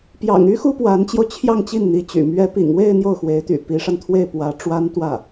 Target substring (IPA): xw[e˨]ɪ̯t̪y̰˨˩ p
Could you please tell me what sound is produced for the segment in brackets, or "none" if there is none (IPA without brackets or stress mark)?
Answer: e˧˥